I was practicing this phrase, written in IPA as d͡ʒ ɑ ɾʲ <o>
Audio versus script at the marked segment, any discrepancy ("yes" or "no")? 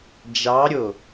no